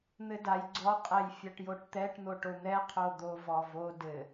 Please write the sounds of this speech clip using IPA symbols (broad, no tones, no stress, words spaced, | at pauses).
n̪ɘdaj ɡ͡ǀɔqʼɛj fʲaʈjoʈt̪ɛʈn̪o ʈon̪ɛ qʰod̪o vɔvo dɘ